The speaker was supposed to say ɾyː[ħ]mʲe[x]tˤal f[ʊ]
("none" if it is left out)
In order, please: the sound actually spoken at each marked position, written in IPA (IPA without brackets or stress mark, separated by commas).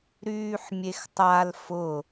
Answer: ħ, x, ʊ